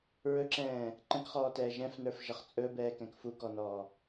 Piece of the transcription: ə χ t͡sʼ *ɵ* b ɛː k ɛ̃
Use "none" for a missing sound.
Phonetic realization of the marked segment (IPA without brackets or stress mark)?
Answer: ɵ